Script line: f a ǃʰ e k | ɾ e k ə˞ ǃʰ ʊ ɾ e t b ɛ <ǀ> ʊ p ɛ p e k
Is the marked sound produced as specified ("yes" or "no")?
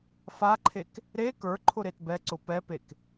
yes